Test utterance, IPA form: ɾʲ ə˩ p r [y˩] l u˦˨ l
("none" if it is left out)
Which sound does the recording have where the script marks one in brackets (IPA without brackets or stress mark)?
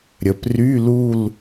y˧˥˧